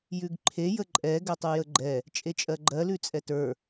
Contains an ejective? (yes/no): yes